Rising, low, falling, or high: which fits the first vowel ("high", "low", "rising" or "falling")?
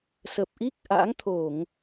low